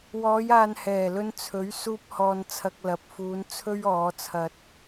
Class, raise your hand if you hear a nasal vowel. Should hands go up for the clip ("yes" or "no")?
no